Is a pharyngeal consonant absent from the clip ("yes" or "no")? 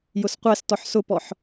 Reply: no